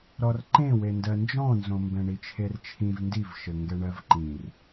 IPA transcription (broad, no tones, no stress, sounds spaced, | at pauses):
ɾ ɔ r ǃ ẽ w e n d ɜ n d͡ʒ ɔ̃ n z õ m b ɛ̃ ɳ i t͡ʃʰ e r t͡ʃʰ ĩ v n d i v ʃ ɘ ŋ ɡ ɛ ɳ ɜ v ǃ ĩ r